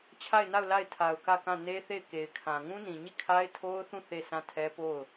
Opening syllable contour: falling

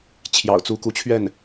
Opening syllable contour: low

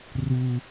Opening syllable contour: high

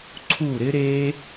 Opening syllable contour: falling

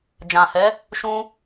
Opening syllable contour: low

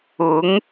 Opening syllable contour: rising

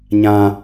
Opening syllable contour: high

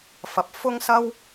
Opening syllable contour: low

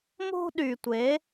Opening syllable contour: high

